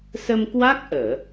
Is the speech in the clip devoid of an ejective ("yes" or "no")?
yes